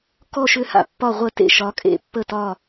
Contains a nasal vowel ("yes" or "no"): no